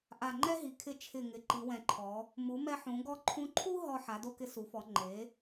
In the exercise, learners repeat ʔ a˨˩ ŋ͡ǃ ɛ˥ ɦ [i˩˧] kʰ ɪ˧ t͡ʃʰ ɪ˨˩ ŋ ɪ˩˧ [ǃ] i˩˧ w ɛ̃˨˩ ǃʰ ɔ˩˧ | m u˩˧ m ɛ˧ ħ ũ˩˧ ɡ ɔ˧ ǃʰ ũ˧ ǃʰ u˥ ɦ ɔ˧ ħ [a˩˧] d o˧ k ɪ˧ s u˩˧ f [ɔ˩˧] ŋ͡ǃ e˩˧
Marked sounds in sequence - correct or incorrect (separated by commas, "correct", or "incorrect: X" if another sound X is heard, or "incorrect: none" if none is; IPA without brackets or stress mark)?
correct, correct, correct, correct